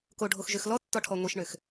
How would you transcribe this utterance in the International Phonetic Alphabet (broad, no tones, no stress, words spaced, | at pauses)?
koɖʱoxʒøx lɔtːɔʈʰɔ ŋʷiʃɳøx